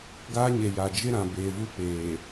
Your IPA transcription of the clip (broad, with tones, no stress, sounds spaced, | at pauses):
ɡ aː˦ ɲ e˨ j a˨ d͡ʒ ɪ˦ ɾ ã˨ b eː˨ v u˦ p eː˨